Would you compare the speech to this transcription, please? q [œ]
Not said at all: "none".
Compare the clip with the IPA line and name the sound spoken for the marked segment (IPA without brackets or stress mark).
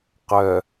œ